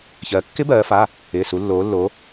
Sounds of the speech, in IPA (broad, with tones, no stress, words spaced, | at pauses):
çɜː˩˧kːɪ˦˥bɜː˩˧fa˩˧˩ | ɪː˩˧˩su˩˧lːoː˩˧lːo˩˧